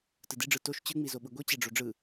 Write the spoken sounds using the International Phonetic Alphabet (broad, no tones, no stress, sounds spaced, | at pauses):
t ɯ d i ɖ͡ʐ ɯ t o ʃ t͡ɕ ɯ ŋ͡m i z o ɓ ɯ ɡʷ i t͡ɕ ɛ ɖ͡ʐ o ɖ͡ʐ ɯ